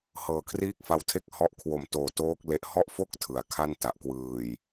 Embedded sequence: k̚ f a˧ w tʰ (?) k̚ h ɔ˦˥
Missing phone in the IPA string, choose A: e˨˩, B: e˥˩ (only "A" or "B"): B